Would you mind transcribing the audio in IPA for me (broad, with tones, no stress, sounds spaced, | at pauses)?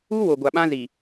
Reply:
u˦ w o˨ ɡʷ a˨ ɓ ã˦ z i˨